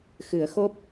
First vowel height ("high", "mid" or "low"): high